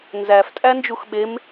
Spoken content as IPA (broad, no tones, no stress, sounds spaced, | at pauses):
n z æ f tʼ æ n d͡ʒ u x ɓ e m